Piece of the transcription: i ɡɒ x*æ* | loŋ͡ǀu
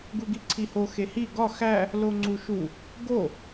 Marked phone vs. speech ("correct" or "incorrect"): correct